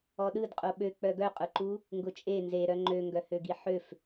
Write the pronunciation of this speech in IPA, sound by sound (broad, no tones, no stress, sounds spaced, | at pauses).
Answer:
ɔ ɗ ɯ d qʼ o ɓ ø k͡p œ ɡ œ qʼ ʊ ǃ u | ŋ ɡ ʊ t͡ʃʼ e n z e ɾ œ ŋ͡ǃ ø ŋ ɡ œ h ø ɡ i ħ ø f